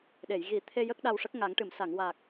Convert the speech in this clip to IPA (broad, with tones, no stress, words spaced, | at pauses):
ɗe˨˩˨j ɣi˨˩˦ t̪ʰe˧ jə˦˥k̚ɗa˧w ʂə˦˥k̚ŋa˨˩˦ŋʈɨ˨˩˨m sa˨˩˨ŋwaː˨˩k̚